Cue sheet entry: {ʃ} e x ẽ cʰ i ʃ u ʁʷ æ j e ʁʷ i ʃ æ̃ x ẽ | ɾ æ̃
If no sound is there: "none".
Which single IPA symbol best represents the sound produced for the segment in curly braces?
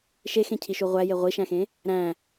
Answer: ʃ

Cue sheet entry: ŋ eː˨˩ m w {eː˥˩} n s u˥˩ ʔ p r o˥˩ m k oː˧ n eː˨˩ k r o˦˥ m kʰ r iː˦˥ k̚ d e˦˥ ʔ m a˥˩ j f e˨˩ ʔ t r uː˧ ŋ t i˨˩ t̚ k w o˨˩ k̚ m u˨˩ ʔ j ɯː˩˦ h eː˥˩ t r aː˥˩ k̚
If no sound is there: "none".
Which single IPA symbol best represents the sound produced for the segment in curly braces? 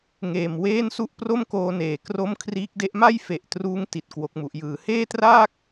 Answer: eː˥˩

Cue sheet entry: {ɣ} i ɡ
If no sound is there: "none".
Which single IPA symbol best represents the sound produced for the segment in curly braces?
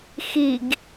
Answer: x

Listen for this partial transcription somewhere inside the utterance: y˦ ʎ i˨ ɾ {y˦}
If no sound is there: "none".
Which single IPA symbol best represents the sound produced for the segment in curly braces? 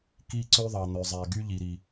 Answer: i˦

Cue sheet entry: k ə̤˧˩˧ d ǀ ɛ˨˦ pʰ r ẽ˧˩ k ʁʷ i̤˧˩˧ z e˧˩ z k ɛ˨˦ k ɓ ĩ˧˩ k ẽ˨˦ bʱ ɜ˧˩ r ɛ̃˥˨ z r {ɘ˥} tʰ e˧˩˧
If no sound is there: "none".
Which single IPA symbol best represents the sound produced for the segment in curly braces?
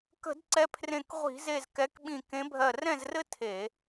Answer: ɘ˥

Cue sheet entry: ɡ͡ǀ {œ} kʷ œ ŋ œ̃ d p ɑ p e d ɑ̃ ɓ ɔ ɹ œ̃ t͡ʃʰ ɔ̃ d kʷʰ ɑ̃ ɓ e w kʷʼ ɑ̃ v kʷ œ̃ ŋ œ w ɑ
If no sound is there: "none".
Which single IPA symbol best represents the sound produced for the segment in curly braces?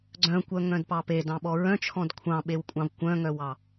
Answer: œ̃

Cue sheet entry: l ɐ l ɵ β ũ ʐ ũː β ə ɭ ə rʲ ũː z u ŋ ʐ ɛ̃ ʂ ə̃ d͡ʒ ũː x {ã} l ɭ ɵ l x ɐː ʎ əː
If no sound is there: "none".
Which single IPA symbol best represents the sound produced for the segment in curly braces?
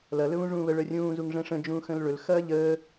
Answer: ə̃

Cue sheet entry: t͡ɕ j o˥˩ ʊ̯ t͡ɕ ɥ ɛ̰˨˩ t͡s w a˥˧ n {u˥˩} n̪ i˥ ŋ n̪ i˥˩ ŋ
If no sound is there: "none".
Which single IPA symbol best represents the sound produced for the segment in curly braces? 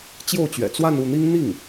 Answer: u˥˩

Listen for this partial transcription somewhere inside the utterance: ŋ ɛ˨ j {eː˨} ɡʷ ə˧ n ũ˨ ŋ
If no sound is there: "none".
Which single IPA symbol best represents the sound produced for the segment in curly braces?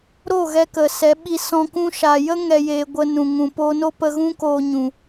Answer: eː˨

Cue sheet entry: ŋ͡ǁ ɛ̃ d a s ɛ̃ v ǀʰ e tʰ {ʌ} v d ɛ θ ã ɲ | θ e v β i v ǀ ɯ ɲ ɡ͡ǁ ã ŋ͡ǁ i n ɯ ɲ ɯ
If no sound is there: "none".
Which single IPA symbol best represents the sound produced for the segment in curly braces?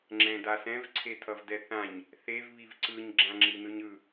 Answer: ʌ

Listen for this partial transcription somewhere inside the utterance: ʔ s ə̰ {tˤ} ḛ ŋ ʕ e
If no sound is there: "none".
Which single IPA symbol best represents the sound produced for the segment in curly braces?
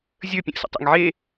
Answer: tˤ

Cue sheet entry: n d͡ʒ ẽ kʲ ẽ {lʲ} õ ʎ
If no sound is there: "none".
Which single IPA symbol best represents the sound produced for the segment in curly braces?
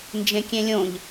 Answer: lʲ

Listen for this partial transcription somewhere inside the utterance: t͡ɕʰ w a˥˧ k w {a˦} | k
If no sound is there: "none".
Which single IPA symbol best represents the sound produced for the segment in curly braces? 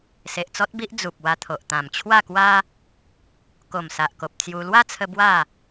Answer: a˦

